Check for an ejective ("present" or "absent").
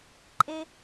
present